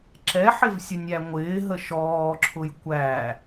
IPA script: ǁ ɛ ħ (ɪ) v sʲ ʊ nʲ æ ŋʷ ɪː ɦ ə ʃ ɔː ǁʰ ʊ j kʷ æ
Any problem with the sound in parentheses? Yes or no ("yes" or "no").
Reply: no